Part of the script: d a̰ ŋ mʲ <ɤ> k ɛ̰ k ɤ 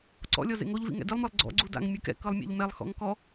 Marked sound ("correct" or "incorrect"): incorrect